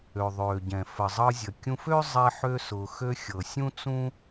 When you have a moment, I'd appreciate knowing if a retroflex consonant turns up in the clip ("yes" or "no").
no